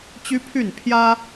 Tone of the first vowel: high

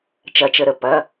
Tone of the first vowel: low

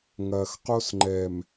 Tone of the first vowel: low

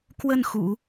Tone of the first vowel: falling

